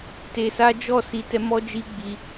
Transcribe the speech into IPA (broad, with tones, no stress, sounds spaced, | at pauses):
t e˧ s a˦ d͡ʒ ɔ˦˨ s i˨˦ t ɛ˧ m ɔ˦ d͡ʒ i˦ ɡ͡b i˧